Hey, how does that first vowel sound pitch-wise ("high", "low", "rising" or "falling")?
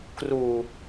low